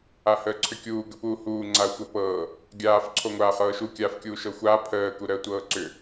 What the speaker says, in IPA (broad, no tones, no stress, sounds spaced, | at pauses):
a h əː ǀʰ ʏ kʲ uː ɡ ə p uː h uː ŋ͡ǀ a ɐ̯ xʷ ɤ p ɤː | ɡʲ aː f ǀʰ o ŋʷ aː χ ɤː ʃ u kʲ aː f kʲ uː ʃ ɤ xʷ aː pʰ əː k u ɾ əː tʷ ɤː ǀ ʏ